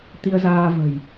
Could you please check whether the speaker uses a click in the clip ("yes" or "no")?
no